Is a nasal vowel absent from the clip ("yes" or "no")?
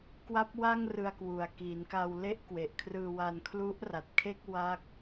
yes